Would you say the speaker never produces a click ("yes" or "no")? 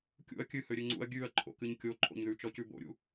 no